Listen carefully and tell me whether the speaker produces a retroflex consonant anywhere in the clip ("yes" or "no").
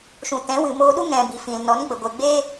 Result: no